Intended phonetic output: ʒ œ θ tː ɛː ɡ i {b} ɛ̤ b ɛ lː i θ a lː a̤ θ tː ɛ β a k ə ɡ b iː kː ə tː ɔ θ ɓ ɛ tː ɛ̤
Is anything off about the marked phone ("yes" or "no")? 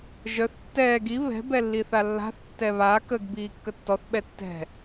yes